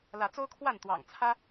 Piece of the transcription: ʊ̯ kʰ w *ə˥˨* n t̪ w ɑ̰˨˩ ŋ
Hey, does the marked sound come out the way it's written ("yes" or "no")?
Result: no